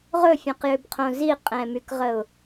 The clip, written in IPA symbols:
ʁ ɵ fʲ õ q j ʏ b qʰ õ z i qʼ ɛ̃ m y k ʁ ə ʊ̯

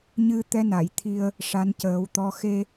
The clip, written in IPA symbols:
ɲ ɨ˧ t̪ ɛ˧˥ n a˨˩˨ j t̪ʰ i˧ ə̯ | ʂ a˧˥ n c əː˨˩˦ w t̪ ɔ˧˥ x e˧

